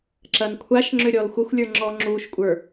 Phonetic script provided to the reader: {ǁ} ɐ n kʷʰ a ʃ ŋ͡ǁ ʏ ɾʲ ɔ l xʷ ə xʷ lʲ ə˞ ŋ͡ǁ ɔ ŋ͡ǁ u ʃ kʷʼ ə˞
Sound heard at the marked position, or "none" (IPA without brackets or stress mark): ǁ